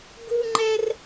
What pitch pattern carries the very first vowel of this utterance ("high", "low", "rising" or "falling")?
high